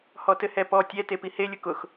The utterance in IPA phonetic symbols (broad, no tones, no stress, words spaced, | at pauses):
hɔtɘhɛpɔ tʲɛ tepihe lʲʊkʊx